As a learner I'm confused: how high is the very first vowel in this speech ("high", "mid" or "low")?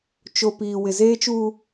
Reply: mid